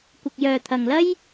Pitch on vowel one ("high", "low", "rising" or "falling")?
low